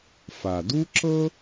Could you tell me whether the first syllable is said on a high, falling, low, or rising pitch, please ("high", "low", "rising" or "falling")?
low